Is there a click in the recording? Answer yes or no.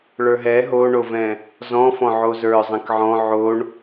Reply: no